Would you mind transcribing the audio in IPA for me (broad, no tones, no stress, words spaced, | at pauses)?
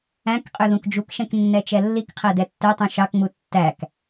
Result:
æ̃k qʼøðũkd͡ʒukʃɛ̃k nːɛt͡ʃɛlːikqʰæ dɛtːɛtˤũ ʃɑkŋ͡mu tːæk